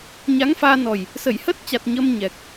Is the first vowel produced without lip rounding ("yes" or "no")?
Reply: yes